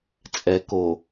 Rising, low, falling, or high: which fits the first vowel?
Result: low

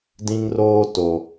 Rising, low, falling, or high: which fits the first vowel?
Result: high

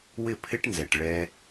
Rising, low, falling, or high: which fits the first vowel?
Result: falling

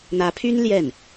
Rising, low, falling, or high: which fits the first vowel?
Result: rising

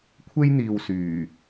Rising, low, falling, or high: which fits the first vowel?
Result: high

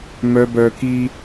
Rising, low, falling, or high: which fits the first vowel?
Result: high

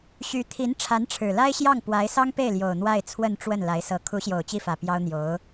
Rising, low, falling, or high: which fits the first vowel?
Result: rising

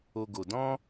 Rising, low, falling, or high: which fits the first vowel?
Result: high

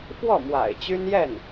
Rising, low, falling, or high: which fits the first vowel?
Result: falling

